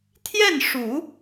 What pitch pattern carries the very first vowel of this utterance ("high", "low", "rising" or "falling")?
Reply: falling